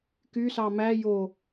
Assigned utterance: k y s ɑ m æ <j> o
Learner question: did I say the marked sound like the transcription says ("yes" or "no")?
yes